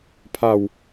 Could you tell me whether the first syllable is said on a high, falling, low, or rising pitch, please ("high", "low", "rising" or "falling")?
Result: falling